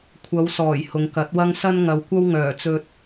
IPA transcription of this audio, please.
kʷʰ ɐ˨˧ w s ɔː˨˩ j h ʊ˨ ŋ k ɐ˨˥ t̚ w ɐ˥ ŋ s ɐ˥ n ŋ ɐ˨˧ w kʷ ɐ˥ w ŋ œː˨˩ t͡s ɵ˧ t̚

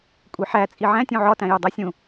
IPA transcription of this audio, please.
kʷʼ e ħ æ t͡sʼ i ʕ æ̃ tʲ ũ ʕ ɒ t æ̃ j o dˤ æ sʲ ũ

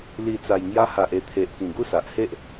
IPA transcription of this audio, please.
l i˨˩ t͡s a˨˩ j ŋ j a˧ h a˨ ʔ e˧ t̪ʰ e˨ ʔ k ĩ˨˩ ɡ u˥˧ s a˨ ʔ h e˦ ʔ

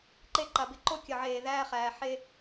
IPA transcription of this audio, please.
ǃ e˦ ǃ a˨ b ɪ˦ ǃ o˦ kʲ ə˨ ʕ eː˨ ð æː˦ χ æː˨ ħ e˦

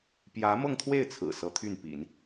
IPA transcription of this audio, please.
p j ä˧˥ m ɤ˥˧ ŋ t̪ʰ w e˥˩ ɪ̯ t͡sʰ ɹ̩˨˩ s ɤ˧˥ t̪ʰ y˥˩ n p ḭ˨˩˦ n

